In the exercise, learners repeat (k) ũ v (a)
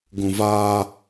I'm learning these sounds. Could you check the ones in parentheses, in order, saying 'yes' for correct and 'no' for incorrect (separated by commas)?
no, yes